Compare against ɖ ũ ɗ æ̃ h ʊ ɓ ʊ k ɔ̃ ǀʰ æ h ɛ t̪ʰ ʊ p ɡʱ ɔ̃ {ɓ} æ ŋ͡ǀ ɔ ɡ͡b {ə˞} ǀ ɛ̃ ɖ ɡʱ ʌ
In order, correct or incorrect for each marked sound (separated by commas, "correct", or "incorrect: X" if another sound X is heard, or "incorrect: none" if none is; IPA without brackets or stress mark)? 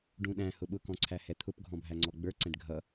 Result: incorrect: bʱ, correct